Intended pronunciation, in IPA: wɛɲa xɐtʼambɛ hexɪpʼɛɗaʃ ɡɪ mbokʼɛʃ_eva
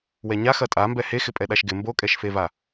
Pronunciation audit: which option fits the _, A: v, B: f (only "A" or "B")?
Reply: B